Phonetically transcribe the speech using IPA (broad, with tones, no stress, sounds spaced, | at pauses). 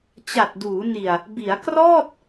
t͡ɕ a˨˩ t̚ d uː˩˦ n i˨˩ a̯ | b i˩˦ a̯ k r ɔː˥˩ t̚